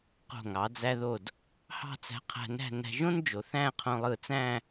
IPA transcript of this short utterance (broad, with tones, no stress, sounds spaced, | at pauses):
q o̤˧˩ ŋ ɑ˩˧ d͡z æ˧ ð o˧˩ d | h ɑ̤˥˧ t͡s æ̤˧ qʰ æ̤˧ n æ̤˥˧ n æ̤˧ ʒ õ˥ n d͡ʒ o˩˧ θ æ̃˥˧ qʰ õ˧ lˠ ɯ˧˩ t͡s æ̃˥˧